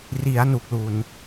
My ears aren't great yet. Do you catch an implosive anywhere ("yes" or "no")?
no